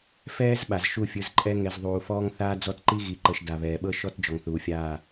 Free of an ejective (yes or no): no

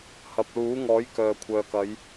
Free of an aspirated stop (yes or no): no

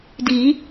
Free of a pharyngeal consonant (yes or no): yes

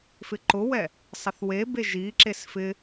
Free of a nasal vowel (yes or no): yes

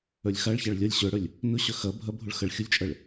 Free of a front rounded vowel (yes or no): no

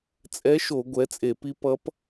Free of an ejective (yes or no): no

